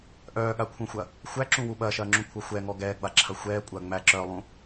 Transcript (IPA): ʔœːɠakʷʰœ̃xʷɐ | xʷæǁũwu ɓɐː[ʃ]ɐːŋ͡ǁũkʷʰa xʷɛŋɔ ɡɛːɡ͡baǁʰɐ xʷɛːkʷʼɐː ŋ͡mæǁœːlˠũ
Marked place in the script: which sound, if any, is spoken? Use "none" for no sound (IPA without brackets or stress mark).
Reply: ʃ